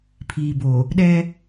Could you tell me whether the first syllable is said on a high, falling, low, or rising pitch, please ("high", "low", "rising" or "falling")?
low